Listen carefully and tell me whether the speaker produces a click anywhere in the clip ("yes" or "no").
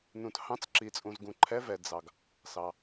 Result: yes